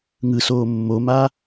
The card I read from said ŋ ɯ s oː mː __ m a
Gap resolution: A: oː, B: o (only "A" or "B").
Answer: B